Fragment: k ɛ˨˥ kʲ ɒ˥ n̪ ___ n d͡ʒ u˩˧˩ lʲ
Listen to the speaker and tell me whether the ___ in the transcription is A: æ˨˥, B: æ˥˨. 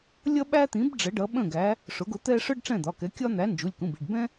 A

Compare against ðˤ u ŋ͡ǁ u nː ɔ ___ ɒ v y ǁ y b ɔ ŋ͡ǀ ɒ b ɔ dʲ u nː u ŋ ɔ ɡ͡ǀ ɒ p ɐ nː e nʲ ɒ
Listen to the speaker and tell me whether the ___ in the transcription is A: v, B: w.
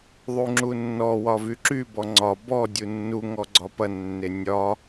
B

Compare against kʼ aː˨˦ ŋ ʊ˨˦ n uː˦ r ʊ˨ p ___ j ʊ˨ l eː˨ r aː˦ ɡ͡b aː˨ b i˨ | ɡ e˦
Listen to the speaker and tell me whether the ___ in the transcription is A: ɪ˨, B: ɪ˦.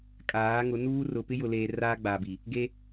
B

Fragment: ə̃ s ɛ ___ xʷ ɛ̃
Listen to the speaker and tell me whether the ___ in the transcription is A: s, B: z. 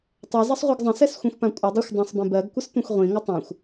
A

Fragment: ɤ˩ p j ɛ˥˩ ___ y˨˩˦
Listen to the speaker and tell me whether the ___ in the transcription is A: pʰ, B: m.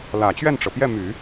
B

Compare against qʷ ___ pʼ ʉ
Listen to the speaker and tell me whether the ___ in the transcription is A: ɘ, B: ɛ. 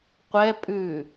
B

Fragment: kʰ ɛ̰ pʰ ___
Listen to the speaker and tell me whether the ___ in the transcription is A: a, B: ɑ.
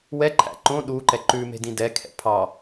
B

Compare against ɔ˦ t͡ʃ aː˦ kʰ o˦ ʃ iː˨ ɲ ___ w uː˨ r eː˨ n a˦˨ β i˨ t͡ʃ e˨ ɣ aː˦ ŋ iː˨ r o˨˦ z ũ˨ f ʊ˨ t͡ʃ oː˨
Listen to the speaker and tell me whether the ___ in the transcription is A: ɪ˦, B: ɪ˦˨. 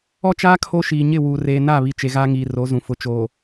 B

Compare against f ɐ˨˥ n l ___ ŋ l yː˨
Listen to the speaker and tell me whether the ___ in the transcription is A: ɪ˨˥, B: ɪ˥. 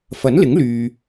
A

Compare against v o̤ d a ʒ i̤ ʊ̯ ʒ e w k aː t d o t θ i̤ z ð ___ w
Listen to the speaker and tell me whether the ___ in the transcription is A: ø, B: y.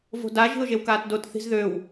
A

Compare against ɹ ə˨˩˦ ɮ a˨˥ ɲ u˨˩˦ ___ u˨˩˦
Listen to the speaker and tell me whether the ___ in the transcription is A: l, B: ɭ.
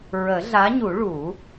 B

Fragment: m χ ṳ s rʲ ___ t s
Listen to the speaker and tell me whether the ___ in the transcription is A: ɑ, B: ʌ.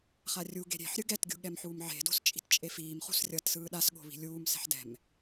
B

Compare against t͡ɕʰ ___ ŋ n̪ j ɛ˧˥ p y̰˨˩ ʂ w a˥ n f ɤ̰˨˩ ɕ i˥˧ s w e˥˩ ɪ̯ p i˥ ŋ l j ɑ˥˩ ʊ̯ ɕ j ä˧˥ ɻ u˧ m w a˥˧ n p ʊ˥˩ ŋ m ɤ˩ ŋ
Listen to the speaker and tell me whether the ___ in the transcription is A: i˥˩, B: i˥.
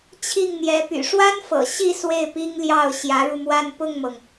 A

